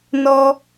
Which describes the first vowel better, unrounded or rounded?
rounded